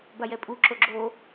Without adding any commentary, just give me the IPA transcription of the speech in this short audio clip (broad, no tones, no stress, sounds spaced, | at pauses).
b a j ɛ pʼ u ǁ o ɡ͡ǁ o